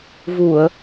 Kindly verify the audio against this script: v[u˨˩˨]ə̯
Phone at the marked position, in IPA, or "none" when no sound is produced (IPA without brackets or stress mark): u˨˩˨